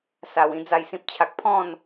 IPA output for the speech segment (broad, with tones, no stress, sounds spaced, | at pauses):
s a˨˩ w ĩ˧ d͡z a˨˩ j s ĩ˨ p̚ t͡ɕʰ a˨ k̚ pʰ ɔ̃˥˧ n